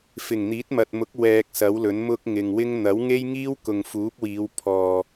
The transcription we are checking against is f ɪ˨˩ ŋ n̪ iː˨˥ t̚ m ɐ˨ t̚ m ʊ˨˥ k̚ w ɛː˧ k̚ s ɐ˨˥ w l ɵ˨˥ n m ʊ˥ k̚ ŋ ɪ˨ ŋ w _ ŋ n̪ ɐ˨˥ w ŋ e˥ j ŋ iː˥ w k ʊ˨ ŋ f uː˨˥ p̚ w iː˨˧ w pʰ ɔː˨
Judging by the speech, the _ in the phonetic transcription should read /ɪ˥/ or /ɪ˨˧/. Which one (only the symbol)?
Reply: ɪ˥